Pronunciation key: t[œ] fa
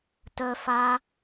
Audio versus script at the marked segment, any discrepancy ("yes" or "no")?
no